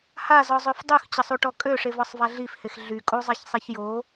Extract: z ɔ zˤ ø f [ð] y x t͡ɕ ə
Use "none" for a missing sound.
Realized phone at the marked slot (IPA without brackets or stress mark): dˤ